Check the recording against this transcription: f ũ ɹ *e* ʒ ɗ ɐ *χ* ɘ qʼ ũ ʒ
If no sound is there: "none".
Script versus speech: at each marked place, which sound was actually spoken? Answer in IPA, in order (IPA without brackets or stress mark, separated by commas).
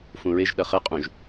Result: e, χ